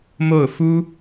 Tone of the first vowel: falling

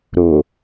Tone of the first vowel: low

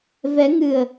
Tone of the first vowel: rising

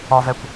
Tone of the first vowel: high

